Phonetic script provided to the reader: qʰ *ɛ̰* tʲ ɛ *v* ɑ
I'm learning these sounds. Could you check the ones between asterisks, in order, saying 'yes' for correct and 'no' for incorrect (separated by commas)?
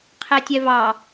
no, yes